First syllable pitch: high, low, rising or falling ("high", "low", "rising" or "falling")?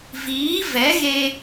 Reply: rising